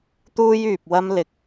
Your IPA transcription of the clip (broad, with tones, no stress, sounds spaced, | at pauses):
t̪ uː˥ j yː˨ p̚ w ɐ˥ m l ɪ˧ k̚